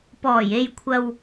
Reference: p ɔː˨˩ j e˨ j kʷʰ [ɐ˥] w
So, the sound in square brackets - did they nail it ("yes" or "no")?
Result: no